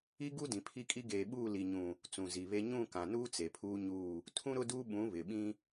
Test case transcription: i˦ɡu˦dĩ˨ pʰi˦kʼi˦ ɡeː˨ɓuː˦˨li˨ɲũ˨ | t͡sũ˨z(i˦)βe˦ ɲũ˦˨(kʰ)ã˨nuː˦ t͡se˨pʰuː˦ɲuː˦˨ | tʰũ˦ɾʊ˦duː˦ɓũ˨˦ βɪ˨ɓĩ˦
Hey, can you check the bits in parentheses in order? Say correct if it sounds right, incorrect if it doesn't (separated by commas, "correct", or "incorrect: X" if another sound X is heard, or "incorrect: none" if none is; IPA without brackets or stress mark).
incorrect: i˨, incorrect: k